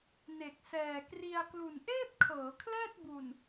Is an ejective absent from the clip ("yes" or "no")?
yes